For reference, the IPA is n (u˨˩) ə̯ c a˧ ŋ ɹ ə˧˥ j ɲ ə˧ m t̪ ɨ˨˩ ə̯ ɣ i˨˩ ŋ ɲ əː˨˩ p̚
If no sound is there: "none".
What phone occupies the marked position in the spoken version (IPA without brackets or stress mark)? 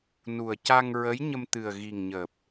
u˨˩